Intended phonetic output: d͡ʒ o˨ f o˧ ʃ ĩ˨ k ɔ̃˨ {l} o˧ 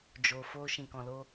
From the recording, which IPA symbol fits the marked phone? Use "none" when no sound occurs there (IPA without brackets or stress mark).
l